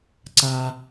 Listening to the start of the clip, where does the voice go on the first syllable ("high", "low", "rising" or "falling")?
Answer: low